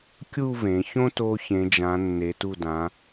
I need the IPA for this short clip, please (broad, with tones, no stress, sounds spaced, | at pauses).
kʲ u˥˧ v ẽ˩˧ ç õ˥ t o˧ ç ẽ˩˧ d͡ʒ ã˩˧ nː e˩˧ t u˧˩ d ã˩˧